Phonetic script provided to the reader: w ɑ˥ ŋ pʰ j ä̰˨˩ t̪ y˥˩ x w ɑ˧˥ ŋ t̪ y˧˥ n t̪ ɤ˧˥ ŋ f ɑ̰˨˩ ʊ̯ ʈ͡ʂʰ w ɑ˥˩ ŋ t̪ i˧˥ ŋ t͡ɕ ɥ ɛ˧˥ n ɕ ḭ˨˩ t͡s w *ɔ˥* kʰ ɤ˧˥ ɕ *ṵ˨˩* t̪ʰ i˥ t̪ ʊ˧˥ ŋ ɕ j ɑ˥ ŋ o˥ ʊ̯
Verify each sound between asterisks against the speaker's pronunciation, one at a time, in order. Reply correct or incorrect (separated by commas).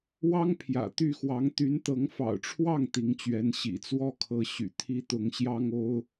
correct, incorrect